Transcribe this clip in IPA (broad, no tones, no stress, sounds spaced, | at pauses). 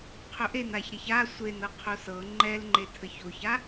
qʰ ɵ ʔ e n a ç ɾ e ç a sʷ e n ɤ qʰ o s ɤ ŋ͡ǃ ɛ l ŋ͡ǃ e tʰ ə ç o ç a